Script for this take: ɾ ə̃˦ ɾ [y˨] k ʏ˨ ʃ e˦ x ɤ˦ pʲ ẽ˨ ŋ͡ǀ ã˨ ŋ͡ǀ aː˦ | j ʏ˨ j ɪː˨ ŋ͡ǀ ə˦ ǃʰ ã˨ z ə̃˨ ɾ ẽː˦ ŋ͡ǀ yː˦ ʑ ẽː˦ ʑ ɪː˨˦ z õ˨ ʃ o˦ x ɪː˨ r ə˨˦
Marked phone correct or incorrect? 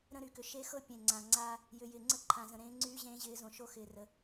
correct